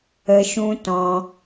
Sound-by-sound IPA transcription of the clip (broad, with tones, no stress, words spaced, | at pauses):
ə˧ʃũ˦tɔ̃˧